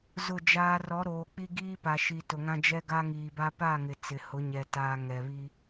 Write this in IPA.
zʊ˦˨d͡ʒaː˦ rɔ˨˦ɾoː˨k͡pi˦ɡiː˦ pa˨ʃi˨tʊ˨ŋã˦ d͡ʒɛ˦ɡa˦ŋiː˨ba˦ pa˦˨ŋɪ˨ t͡sɪ˨hʊ˨˦ɲɛ˨ taː˨ ŋɛ˨ βi˦

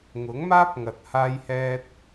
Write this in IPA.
ŋʊ˨˥ŋmaː˥p̚ŋɐ˨t̚ haː˧jhɛː˧t̚

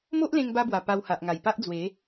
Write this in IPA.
mo˦ʔlẽ˧ŋba˧bwa˨˩ pa˧wha˨ʔŋa˨˩jpa˦ʔ d͡zwe˨˦

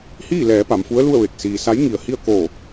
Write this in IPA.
hiː˥˨lɛː˩˧ pa˩˧mfu˧˥ə̯lu˥˨ə̯ʋe˧˩k̚ siː˩sa˧˥j ŋi˧˩ə̯hi˥˨ə̯ koː˧˩

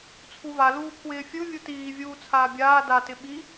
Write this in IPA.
t͡sʰuva luːpʰwɪːfʲɯ vʲutiː vʲuːt͡sʰaːbʲaː da tɪɓi

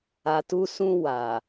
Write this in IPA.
a˨tu˧sũ˧ wa˨

